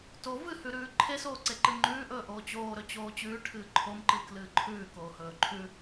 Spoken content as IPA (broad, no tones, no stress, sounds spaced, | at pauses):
t o v ɨ h ʉ ɾ ʉː ǃʰ e s oː ǀ e ǃ ɨ ŋ͡ǃ ʉː ʔ ɵː ʔ oː t͡ɕ oː ɾ ɵ t͡ɕ oː t͡ɕ ʉː ʈʰ ɨː ǃʰ o m ǃ ɨː k l ɨː ǃʰ ʉː k oː h ɵː ǃʰ ʉ